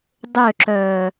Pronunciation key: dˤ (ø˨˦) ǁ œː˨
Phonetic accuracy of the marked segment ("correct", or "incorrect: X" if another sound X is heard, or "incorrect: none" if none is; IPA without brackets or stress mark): incorrect: ø˦˨